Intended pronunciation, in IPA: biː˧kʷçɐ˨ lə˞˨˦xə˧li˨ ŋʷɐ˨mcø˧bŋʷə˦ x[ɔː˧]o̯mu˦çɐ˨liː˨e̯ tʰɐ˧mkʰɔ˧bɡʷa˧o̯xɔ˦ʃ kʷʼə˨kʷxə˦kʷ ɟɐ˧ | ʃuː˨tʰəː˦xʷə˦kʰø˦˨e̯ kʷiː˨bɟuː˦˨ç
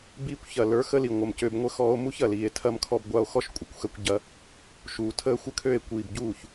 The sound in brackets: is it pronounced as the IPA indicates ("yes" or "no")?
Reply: yes